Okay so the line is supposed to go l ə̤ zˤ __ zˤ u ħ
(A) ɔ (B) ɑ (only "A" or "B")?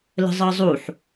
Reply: B